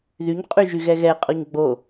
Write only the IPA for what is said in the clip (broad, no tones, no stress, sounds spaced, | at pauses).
ð y ɲ qʼ y ʒ y ɣ ɛ ɣ ɛ qʼ ɔ ɲ ɡ͡b o